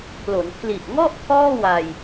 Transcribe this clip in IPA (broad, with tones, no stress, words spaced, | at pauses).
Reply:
pʰlo˩˦npʰli˨˩ʔŋɔ˥˩ʔ kʰɔː˥˩wa˧j